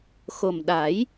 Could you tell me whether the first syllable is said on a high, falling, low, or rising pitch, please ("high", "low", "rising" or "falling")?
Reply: low